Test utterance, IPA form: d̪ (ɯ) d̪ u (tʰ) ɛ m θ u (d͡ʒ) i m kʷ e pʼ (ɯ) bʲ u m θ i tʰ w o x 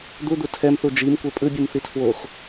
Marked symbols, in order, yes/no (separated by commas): no, yes, yes, yes